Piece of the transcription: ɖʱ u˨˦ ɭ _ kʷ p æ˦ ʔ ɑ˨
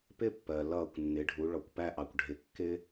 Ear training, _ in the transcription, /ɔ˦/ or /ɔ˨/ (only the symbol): ɔ˨